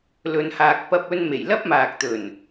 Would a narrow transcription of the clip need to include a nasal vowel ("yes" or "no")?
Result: no